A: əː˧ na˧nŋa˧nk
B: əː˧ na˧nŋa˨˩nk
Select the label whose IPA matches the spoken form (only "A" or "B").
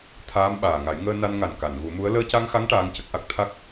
B